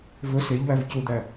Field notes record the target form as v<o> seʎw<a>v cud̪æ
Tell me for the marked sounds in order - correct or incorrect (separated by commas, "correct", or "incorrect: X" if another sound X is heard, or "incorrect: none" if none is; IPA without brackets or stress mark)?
incorrect: ɵ, incorrect: æ